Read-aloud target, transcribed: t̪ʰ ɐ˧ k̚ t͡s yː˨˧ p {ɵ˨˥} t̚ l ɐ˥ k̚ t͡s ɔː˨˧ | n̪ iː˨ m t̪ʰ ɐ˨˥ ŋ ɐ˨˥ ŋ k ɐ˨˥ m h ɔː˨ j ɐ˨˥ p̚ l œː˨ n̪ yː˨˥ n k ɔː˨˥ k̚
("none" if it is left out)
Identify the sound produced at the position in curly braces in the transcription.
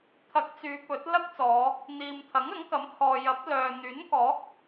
ɵ˨˥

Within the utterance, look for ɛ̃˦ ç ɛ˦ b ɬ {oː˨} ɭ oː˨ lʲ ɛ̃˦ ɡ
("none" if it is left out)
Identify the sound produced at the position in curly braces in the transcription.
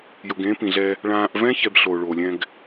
oː˨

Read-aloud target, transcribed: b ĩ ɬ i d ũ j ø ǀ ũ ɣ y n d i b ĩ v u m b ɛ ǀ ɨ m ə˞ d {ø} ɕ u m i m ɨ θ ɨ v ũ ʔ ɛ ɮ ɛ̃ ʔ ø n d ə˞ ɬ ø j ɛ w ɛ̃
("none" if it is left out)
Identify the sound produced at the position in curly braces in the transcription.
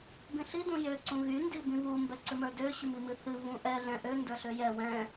ø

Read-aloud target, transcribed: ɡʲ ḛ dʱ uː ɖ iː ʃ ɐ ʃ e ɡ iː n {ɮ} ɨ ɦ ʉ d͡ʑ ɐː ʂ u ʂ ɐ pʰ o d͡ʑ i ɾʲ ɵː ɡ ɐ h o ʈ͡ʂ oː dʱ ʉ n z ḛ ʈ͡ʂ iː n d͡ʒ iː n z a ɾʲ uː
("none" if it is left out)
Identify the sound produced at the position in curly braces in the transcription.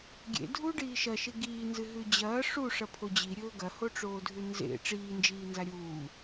z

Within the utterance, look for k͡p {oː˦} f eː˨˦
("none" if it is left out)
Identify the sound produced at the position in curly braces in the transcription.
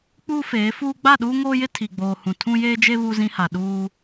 uː˦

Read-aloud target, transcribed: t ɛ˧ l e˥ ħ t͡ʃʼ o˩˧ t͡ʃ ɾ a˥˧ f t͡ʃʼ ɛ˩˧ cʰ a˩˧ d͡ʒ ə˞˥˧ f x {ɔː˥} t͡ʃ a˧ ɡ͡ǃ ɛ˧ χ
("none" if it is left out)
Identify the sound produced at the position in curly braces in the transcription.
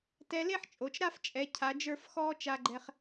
ɔː˥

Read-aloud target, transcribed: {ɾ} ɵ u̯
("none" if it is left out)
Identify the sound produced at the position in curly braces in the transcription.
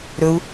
ɾ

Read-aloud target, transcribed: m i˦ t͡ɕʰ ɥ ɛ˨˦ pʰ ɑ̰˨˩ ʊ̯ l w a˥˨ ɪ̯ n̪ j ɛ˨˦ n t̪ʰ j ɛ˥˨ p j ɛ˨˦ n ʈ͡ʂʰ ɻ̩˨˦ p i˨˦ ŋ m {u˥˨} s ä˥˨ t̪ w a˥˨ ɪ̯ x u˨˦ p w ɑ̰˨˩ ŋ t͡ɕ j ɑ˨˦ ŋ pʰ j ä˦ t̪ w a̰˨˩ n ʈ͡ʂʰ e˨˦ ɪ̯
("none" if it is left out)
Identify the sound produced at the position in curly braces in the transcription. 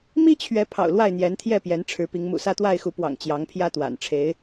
ṵ˨˩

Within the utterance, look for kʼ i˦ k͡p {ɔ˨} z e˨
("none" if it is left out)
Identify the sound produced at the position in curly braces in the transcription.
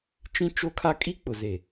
ʊ˨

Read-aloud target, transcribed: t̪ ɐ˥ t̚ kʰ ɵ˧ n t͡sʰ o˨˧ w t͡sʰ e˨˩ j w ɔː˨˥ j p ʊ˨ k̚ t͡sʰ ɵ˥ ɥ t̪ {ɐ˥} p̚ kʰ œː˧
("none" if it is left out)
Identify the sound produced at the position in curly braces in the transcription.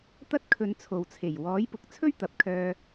ɐ˨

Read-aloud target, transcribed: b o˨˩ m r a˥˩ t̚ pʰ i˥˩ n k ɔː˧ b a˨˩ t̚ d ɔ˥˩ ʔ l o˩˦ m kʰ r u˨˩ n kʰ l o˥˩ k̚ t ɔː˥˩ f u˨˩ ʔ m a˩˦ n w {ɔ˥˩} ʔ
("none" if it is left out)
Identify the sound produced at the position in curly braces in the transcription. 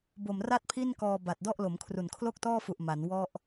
ɔ˥˩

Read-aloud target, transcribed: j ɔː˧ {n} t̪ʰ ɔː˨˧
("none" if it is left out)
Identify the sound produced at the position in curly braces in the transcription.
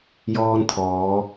n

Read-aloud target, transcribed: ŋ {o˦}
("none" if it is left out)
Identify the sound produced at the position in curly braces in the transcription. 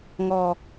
ɔ˦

